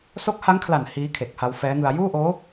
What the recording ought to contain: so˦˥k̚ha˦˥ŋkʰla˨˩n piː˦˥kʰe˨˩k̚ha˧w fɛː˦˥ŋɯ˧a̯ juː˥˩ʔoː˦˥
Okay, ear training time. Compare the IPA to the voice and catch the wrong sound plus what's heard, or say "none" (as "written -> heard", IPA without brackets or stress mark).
p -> h